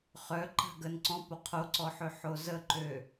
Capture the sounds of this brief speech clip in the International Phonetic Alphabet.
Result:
χœǃa̤ ɡən ǀɔ̃po qʰoǀɔħøħo zəǃø

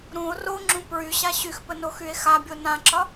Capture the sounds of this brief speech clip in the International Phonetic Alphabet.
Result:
ɾũo̯ roŋ͡ǁũ pɹyɕa ɕyxpənoxye̯ xabʲo nãǁɒ

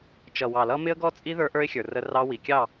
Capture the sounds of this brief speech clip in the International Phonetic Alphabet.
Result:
t͡ʃʌ˨wɑ˨lʌ˦ mɪ˦ə̯ɡɔ˦t͡sʼi˦ ðə˞˦ʔə˞˦ɪ̯xʲə˞˨ rə˦rɑ˦ wi˨kʲɑ˦˨

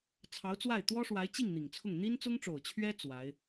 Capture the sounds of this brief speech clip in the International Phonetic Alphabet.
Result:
t͡sʰɑ˧˥ʊ̯t͡swa˥˩ɪ̯ t̪wɔ˥ʂwa˧˥ɪ̯t͡ɕi˥˩ŋ n̪i˨˩ŋt͡sʰʊ˥˩ŋ n̪i˥nt͡sʊ˥ŋʈ͡ʂo˨˩ʊ̯t͡ɕʰɥɛ˥ t͡swa˧˥ɪ̯

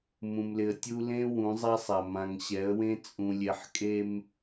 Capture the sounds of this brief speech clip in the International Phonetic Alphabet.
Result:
mũ˨mlɪ˨ə̯tʲu˦ lẽ˦ wũ˨˦zˤa˦sˤa˨ mã˨ŋɕɛ˨˦ə̯wẽ˦ t͡sʼũ˨lʲe˨ħkʼe˦m

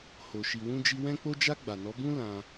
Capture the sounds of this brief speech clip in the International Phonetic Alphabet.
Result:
ho˨ ʃi˨wũ˧d͡ʒi˧ wɛ̃˧k͡po˧d͡ʒa˧ ɡ͡ba˨nɔ˨˦bũ˦ lã˧

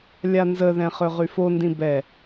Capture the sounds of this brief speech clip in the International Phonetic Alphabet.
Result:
lʲanzəðɛ̃ χøʁyfondĩ bɛ

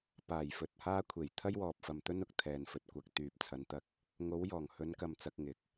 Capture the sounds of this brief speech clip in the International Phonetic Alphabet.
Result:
paː˨˩jfɵ˨t̚haː˥ kʷʰe˨˩jt̪ʰɐ˥jwɔː˨p̚fɐ˨m t̪ɵ˥nʊ˨k̚t̪ʰɛː˨nfɵ˨t̚ kʷɐ˨k̚ t̪yː˨p̚ t͡sʰɐ˨˧nt̪ɐ˧k̚ | ŋo˨˧wjɔː˨˩ŋhɵ˨˧nkɐ˨m t͡sɐ˧k̚ŋɪ˨˥k̚

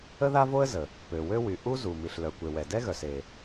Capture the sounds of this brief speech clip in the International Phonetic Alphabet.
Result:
ə˥ða˥vo˥ə̯ zə˩ | pø˩wø˥ wy˩ ʔu˥zu˩ mi˩ɬlœ˩kʷe˩ wɛ˩dɛ˥ɣœ˩s e˩

